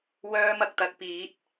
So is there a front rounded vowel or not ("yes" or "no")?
yes